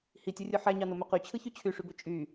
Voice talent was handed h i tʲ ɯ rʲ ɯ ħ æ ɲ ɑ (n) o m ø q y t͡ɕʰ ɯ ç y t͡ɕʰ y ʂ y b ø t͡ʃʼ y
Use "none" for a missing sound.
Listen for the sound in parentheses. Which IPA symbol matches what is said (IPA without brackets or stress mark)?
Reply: n